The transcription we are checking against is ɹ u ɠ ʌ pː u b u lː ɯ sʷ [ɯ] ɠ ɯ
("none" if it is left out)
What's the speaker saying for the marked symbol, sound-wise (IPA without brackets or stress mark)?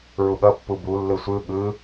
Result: ɯ